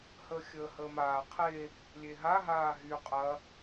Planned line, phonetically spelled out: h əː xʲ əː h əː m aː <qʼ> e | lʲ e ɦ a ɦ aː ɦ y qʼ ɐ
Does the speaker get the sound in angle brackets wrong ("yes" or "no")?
yes